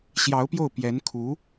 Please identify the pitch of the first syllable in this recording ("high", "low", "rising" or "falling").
rising